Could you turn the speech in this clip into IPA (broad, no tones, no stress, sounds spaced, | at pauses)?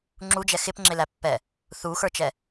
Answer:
ŋ͡ǁ u d͡ʒ ɛ x ɪ p ŋ͡ǁ ɪ l æ pː ɛ | θ u x ə˞ t͡ʃ ɛ